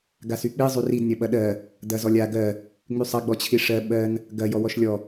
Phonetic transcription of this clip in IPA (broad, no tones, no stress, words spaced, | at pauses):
ɡasyk͡pi zˤyrid nʲɐɓɐɗɜ | dɐzɔlʲa ɡɜ | ŋ͡mysˤɐ ɡ͡bɔt͡ɕʰiʂɜ ɓɜn | ɡɐ jɔwɔʃlʲɔ